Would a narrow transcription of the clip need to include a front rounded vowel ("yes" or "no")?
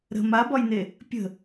no